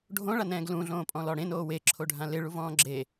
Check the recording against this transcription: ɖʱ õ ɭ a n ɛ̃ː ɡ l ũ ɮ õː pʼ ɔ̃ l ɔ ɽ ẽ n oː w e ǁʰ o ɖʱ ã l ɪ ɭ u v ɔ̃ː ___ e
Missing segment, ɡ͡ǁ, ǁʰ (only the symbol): ɡ͡ǁ